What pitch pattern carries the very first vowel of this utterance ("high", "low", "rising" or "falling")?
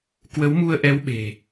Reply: rising